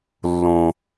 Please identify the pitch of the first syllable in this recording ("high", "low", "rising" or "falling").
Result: low